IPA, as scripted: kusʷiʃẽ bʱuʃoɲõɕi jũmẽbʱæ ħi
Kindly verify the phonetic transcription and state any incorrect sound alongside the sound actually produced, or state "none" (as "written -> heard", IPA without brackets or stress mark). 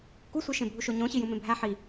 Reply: none